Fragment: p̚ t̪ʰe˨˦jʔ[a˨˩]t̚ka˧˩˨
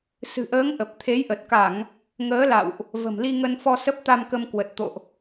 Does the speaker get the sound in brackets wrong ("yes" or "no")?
yes